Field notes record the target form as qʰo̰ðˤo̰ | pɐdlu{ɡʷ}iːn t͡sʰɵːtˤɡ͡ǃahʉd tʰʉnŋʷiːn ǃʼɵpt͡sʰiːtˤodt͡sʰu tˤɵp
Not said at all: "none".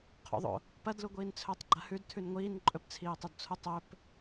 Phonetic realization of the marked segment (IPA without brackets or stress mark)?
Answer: ɡʷ